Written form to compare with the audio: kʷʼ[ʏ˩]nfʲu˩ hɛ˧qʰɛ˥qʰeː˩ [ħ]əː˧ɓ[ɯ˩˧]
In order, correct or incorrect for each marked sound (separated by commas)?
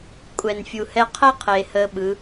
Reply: incorrect, incorrect, correct